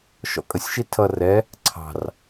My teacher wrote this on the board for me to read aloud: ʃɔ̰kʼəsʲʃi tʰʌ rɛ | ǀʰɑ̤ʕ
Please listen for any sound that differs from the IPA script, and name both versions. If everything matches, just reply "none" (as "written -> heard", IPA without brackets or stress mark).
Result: ʕ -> r